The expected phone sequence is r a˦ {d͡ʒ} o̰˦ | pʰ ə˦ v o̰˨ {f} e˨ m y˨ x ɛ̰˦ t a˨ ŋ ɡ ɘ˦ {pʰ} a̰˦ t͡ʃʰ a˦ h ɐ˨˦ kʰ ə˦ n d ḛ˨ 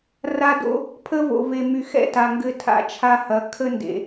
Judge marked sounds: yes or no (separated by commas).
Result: no, no, no